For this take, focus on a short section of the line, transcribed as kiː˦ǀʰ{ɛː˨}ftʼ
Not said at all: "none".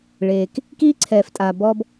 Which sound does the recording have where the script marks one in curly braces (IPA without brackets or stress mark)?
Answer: ɛː˨